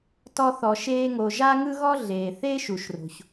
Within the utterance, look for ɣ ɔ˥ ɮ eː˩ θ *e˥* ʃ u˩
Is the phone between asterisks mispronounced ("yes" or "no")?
yes